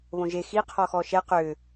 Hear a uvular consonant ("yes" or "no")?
yes